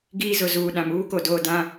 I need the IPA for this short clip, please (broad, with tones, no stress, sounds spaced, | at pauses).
ɡ iː˦ z ʊ˨ z uː˨ ɗ ã˨ m uː˦ k o˨ d oː˨ d ã˦